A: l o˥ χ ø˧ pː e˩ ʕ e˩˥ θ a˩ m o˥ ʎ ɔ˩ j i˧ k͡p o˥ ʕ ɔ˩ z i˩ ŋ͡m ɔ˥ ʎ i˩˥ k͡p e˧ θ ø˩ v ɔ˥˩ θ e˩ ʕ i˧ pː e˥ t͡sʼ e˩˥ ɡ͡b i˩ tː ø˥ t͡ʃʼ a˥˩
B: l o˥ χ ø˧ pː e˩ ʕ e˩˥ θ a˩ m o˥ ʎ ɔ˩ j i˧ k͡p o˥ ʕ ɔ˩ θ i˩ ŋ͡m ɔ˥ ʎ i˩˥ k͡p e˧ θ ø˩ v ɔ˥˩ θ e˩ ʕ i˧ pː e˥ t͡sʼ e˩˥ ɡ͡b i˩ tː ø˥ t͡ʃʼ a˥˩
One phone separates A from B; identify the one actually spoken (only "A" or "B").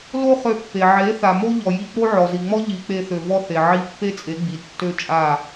A